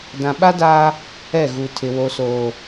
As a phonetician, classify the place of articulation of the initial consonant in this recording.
alveolar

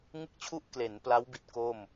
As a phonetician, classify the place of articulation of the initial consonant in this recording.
velar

